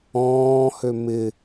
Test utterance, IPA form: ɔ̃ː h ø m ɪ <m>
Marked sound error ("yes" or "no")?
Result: yes